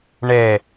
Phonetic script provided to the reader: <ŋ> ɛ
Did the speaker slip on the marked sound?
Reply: yes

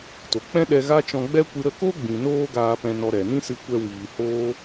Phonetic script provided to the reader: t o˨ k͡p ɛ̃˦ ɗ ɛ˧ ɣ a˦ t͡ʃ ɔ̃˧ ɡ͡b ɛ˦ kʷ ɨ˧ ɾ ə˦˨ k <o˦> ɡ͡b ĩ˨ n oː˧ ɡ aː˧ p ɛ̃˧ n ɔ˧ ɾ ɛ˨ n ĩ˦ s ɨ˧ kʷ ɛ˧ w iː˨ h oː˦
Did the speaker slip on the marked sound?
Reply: no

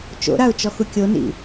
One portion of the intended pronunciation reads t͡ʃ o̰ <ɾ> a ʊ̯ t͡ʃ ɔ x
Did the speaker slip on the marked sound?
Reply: no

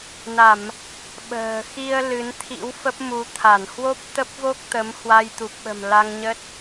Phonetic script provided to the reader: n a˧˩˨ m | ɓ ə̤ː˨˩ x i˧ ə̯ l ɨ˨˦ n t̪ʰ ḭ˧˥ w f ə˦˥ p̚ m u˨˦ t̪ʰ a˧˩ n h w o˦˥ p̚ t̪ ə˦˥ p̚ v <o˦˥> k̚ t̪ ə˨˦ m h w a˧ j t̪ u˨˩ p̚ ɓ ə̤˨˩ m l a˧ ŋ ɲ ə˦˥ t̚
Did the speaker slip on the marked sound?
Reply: no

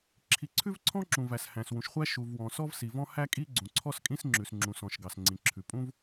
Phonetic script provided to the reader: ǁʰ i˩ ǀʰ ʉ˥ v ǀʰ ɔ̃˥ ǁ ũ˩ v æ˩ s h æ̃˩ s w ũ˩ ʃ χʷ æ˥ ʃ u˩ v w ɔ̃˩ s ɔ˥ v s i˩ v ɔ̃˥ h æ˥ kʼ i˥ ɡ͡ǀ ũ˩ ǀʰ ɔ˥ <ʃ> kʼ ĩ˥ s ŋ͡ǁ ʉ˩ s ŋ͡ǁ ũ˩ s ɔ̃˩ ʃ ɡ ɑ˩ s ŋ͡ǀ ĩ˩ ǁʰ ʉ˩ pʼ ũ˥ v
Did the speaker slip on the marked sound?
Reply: yes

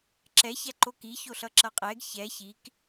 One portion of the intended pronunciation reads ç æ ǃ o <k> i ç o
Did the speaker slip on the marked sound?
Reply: no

